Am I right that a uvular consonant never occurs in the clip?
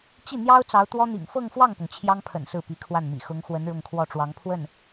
yes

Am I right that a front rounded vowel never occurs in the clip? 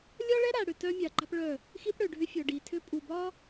no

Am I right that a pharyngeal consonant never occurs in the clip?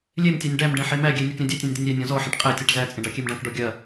no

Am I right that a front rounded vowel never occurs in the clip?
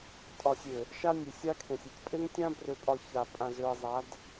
no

